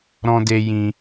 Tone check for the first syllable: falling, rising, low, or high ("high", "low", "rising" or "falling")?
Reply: high